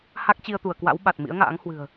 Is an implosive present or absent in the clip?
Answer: present